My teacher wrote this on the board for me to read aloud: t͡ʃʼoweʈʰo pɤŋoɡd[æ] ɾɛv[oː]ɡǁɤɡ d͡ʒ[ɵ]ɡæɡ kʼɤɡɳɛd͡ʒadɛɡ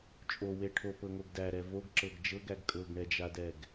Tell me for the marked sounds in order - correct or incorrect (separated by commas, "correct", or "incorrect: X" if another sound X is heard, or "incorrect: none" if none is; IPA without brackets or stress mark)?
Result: correct, incorrect: o, incorrect: ɤ